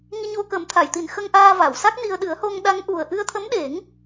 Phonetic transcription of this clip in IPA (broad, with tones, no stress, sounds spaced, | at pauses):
ŋ i˧ ɲ o˧ k ə˨˩˦ m t̪ʰ a˨˩˨ j t̪ i˨˩ n x ə˧ ŋ ʔ aː˧ v a˨˩˨ w s a˦˥ k̚ n i˧ ə̯ ɗ ɨ˨˩˦ ə̯ h o˧ ŋ ɗ a˧˥ ŋ ʔ u˨˩ ə̯ ʔ ɨ˧ ə̯ t̪ʰ ə˧˥ m ɗ e˨˩˦ ŋ